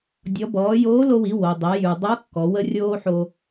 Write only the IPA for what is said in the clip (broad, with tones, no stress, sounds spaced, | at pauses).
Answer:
dʲ ɔ˩˧ b ɔː˩˧ j oː˧˥ l o˧ w i˩˧ w o˩ dˤ e˩˧ j ʉ˩ dˤ o˧˥ kː ɔ˩˧ w ə˥ rʲ oː˥ ħ o˧